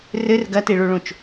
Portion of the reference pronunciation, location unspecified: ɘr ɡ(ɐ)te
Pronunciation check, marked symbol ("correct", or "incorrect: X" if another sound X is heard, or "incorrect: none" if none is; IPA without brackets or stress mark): correct